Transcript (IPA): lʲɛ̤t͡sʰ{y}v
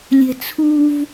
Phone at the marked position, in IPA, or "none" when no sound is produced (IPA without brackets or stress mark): u